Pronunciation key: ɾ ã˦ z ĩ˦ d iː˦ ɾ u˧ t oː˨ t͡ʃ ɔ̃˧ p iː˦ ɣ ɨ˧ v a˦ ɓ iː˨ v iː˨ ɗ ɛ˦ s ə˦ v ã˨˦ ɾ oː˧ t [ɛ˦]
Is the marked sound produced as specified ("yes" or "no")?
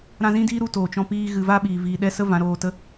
no